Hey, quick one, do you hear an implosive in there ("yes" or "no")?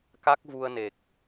no